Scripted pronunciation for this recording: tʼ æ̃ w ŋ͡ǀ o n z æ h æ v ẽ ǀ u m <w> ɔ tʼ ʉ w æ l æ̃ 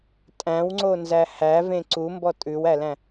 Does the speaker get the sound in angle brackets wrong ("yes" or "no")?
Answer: yes